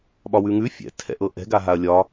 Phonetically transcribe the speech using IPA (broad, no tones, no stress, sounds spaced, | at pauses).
ɓ ɒ w ʉ ŋ ʉ fʲ ɛ̰ tʰ ɛ̰ ʔ ɤ ʔ ɛ̤ ɡ a ɦ a ɐ̯ lʲ ɒ